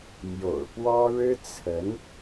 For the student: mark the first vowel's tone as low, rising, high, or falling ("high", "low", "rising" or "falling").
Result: low